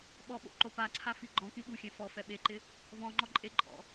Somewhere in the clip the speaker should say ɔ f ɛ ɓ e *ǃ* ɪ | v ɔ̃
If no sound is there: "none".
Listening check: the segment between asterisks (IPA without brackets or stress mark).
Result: ǃ